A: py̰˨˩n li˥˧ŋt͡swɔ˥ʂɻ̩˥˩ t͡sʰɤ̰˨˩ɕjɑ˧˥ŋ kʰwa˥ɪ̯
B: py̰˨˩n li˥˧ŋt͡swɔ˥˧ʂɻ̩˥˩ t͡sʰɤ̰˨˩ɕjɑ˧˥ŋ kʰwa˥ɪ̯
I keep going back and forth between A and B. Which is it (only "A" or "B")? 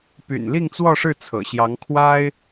B